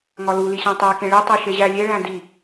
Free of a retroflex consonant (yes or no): no